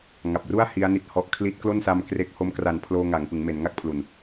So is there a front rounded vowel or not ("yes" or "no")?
no